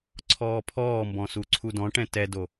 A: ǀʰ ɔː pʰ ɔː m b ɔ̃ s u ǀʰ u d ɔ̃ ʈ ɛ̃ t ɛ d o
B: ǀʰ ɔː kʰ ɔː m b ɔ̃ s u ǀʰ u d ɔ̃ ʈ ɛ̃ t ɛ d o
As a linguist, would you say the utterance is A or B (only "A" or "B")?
A